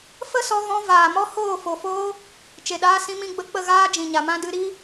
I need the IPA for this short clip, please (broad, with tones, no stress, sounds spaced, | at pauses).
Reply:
f ə˦ s ɔ˧ ɣ ɔ̃˧ v aː˨ m ɔ˦ h oː˦˨ f o˨ f oː˦ | t͡ʃ e˨ ɗ aː˧ s ĩ˧ m ĩ˧ ɡ͡b ə˧ k͡p ə˦˨ ɣ aː˦ d͡ʒ ĩ˨ ɲ a˨ m ã˦ d ɨ˧ ɾ i˦